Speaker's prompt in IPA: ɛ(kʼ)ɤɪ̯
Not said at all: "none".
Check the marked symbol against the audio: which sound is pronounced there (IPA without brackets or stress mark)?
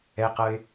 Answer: q